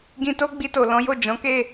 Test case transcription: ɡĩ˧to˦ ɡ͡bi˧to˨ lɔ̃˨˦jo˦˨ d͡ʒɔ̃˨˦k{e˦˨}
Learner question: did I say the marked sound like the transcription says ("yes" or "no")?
yes